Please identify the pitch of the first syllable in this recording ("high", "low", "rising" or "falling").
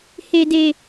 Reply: low